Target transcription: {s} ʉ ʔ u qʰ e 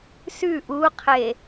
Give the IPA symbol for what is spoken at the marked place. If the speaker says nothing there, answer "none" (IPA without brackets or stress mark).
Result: s